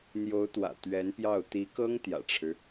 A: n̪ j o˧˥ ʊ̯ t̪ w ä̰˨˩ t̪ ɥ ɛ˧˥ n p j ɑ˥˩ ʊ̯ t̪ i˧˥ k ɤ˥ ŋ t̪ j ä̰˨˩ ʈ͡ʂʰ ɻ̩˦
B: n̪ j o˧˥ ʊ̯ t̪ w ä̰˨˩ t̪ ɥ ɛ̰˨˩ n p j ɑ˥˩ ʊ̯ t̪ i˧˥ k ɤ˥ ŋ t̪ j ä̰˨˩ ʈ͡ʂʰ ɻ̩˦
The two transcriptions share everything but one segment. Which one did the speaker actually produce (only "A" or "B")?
A